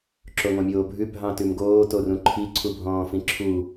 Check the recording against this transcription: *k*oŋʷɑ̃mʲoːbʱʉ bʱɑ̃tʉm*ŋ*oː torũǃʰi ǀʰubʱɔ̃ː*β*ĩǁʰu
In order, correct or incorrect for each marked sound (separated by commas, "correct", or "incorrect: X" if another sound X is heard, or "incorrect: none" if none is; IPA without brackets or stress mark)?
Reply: incorrect: ǁ, incorrect: ɡ, incorrect: f